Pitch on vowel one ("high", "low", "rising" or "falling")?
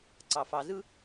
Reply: low